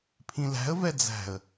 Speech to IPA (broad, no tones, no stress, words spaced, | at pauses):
pʰĩlæ̤ə̯vɛ d͡zæ̤ə̯